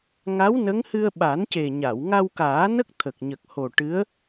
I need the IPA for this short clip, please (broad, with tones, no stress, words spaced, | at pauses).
ŋa˧˥w nə˧˥ŋhɨ˧ə̯ ɓa˨˩˦nce˨˩ɲa˨˩˨w ŋa˧wkaː˨˩˦nə˦˥k̚ t̪ʰə˨˩k̚ɲə˨˩k̚ho˨˩ ʈɨ˧˥ə̯